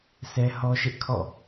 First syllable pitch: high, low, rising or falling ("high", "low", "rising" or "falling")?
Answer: high